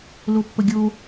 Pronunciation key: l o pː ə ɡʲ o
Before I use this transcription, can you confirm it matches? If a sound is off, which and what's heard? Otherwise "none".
none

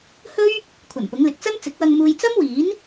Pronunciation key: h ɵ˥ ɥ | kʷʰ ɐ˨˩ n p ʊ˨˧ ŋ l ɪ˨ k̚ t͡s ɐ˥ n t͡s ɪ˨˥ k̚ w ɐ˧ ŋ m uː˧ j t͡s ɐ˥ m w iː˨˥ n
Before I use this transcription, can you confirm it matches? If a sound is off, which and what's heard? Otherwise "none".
none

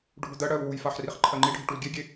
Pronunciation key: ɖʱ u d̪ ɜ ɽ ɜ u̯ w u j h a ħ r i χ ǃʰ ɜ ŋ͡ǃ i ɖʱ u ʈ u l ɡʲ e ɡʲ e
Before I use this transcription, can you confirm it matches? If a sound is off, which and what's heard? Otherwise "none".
h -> f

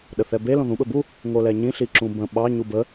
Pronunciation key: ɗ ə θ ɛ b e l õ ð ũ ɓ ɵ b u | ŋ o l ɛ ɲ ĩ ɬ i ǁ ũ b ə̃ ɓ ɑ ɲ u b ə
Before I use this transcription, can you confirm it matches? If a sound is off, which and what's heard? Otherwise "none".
none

